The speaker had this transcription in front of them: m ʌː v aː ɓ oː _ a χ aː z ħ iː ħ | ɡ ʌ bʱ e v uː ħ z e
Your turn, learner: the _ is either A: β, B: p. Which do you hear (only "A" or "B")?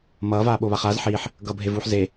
A